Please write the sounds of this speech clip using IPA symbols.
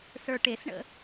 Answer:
sə˞ʈesɳə̰

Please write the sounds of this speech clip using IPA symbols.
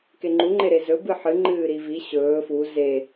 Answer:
keŋ͡ǃuŋ͡ǃe ɾezɵ bɨħɨŋ͡ǃɨː ɾivi ɕɵː fu ze

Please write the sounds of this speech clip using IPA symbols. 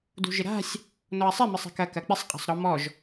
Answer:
dṳʒɪɾa̤sʲ | nɔɐ̯sˤɪ mɪsˤɛ̤kɐ kɐk͡pɪsˤ qʼa̤sˤɾɔmɔʒ

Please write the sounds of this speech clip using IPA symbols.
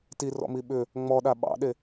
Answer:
tirɔ̰mi ɓʏ | ŋ͡mɔɗa ɓɑ̰ɗe

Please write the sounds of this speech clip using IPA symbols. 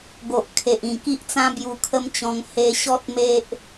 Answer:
ɡo˨ʔ kʰe˨ʔĩ˨˩ki˦ʔt͡sã˦ bju˧kʰə˦mt͡ɕɔ̃˧ŋ he˧ɕɔ˦t̚ me˦ʔ

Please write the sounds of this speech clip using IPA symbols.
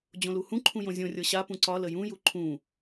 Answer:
d͡ʑõluhũǃʰũ jõzʲõrʲɤ ɕapũ ǀɒ ləjũju ǃʰũ

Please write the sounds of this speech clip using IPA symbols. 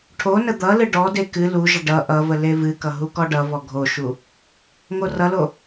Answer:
ʈʰonə d̪ʌlɨ ɖɔde kɨ luʒə ɖʌ ʔʌvə levɨkʌ ɦukɔɖʌvɔ ɡʱoʃu | ŋorʌlo

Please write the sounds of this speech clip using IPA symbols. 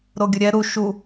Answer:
ɾoɡʲəɾʲɛ ɾu ʃu

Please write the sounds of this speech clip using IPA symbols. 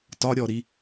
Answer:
tɒɾʲɔɾi

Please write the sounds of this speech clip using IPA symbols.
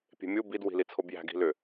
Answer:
pʲe̤mʲu bid wi̤lit͡sʰobjæ̤ ɡi̤lʏ

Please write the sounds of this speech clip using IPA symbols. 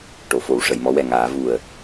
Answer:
ʈo˨˩˨fo˨˩˨w ʂə˨˩˨jmɔ˧˥wɛ˨˩ŋaː˨˩˦ vu˨˩ə̯

